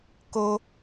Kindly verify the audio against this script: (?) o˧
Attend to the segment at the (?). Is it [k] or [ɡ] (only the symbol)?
k